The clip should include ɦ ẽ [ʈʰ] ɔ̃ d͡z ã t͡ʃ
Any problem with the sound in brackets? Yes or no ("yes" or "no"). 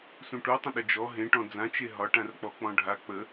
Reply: yes